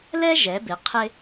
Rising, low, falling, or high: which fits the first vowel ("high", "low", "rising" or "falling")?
high